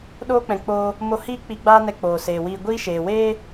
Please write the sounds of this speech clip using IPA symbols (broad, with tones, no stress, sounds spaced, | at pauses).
ɗ oː˧ k͡p ɛ̃˨ k͡p oː˧ | m o˧ h iː˦ k͡p i˧ ɡ͡b aː˦ n ɛ˧ k͡p oː˨ s eː˨ w iː˧ ɡʷ iː˦ ʃ eː˨ w eː˦